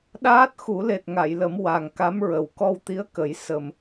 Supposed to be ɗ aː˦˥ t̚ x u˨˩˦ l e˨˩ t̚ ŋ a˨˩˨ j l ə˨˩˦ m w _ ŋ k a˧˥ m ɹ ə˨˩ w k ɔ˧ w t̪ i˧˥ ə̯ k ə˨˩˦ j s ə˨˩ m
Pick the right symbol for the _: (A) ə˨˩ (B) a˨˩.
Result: B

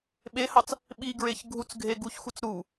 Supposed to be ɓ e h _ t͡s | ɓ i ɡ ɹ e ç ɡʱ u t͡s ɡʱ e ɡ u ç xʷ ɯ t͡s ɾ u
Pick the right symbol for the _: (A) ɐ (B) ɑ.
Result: B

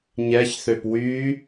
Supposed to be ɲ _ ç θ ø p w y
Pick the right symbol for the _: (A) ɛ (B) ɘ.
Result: A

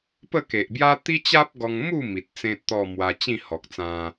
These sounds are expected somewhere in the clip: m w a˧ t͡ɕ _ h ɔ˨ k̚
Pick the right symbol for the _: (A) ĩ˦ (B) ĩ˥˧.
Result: B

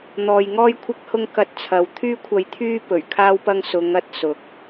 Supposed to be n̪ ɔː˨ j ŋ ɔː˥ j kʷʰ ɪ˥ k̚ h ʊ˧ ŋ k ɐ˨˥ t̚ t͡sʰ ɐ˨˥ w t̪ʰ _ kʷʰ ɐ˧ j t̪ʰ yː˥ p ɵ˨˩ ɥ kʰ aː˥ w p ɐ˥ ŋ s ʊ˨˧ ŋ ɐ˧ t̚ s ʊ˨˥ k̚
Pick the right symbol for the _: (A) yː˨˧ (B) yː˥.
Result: B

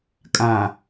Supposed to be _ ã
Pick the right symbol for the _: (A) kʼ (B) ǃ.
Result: A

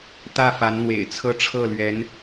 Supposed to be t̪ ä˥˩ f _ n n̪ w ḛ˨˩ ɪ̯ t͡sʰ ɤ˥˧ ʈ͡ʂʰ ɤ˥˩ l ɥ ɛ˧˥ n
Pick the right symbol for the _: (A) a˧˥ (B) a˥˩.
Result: A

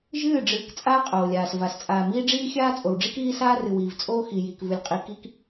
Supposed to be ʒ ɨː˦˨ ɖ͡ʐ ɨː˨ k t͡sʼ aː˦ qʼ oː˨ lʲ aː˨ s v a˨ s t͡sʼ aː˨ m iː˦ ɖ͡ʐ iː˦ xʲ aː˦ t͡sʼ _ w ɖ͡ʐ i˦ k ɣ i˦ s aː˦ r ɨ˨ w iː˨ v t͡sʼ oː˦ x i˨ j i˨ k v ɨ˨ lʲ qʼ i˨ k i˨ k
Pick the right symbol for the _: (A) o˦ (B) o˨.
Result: B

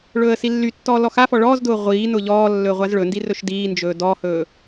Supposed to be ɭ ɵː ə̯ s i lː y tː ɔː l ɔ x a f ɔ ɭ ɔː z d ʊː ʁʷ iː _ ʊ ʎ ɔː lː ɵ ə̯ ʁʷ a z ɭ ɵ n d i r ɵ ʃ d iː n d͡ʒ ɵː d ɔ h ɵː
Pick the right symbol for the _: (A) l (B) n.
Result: B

